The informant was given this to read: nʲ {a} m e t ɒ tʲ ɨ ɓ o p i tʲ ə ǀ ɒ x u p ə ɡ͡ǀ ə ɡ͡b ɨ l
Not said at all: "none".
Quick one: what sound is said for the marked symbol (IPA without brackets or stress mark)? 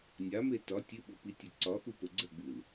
a